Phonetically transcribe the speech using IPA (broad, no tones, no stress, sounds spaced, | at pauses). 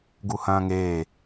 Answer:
ɡ u h ɐ̃ː ŋ eː